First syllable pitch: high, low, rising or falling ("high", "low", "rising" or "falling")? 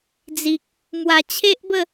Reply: low